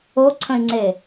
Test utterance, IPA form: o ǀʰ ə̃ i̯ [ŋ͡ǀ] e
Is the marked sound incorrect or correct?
correct